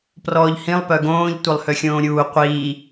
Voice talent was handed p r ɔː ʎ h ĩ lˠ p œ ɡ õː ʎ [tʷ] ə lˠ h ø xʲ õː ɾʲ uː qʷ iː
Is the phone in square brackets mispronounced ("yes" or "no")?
no